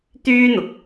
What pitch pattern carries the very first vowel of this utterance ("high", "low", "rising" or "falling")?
high